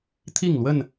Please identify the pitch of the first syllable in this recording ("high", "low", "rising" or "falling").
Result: falling